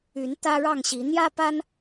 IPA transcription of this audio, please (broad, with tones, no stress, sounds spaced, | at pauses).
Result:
y˨˦ n t̪ ä˦ ɻ ɑ˥˨ ŋ ɕ i˨˦ n̪ j ä˦ p a˦ n